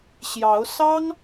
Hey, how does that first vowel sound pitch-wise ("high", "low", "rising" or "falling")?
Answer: rising